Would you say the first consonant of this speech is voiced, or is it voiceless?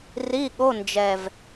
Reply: voiced